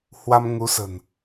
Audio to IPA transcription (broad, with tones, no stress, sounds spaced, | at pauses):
h w a˧ m ŋ u˨˦ s ə̤˨˩ n